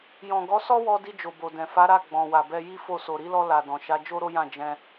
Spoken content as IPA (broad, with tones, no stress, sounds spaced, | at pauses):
j ɔ̃˨ ɡ ɔ˨˦ s ɔ˦ w ɔ˧ d i˧ d͡ʒ o˨ b o˨ d ɛ̃˨ f a˨˦ ɾ a˦˨ ɡ͡b ɔ̃˨ w a˨ b ɛ˧ j i˦ f o˦˨ s o˨ ɾ i˧ l ɔ˧ l a˨ d ɔ̃˨ ʃ a˨˦ d͡ʒ o˦ ɾ o˦ j ã˦˨ d͡ʒ ɛ̃˧